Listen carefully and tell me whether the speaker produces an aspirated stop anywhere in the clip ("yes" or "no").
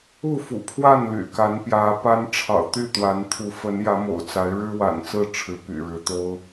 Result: yes